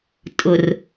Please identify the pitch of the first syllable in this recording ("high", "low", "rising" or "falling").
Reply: low